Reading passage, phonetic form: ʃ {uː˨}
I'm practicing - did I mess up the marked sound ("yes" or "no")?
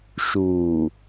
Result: no